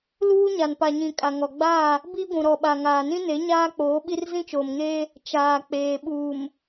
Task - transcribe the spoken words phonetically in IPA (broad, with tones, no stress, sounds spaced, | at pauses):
l uː˦ ɲ a˨ n p a˨ ɲ ĩ˨ kʼ a˨ ŋ ɔ˨ ɡ͡b aː˦˨ | b i˦ ɡʷ ũ˨ ɾ ɔ˨ ɓ a˨ ŋ aː˨ n ĩ˦ n e˨˦ ɲ aː˦ k͡p oː˨˦ ɓ i˦ r z ĩ˦ t͡ʃ oː˨ m ŋ eː˦ | t͡ʃ aː˨ k͡p eː˨ ɓ uː˨ m